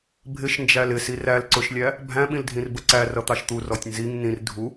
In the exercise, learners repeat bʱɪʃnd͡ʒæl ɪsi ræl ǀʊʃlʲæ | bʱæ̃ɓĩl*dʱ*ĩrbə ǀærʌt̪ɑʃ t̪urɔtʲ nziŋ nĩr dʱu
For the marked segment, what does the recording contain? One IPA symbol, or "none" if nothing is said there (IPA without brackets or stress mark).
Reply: dʱ